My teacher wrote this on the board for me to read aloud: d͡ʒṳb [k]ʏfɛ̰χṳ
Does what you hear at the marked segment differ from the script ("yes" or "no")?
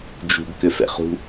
no